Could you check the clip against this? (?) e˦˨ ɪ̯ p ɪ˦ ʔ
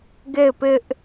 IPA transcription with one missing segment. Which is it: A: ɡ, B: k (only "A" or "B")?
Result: A